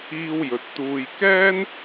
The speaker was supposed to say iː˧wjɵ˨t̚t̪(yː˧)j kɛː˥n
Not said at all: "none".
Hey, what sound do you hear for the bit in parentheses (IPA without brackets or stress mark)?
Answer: uː˧